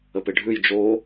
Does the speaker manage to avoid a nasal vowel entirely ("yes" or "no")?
yes